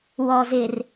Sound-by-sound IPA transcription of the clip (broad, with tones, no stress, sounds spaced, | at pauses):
w ɔ˨ z ɪ˨ r